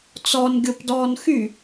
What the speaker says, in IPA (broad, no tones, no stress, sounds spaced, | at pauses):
t͡s ɔ n ɡʲ ʊ p d ɔː n x y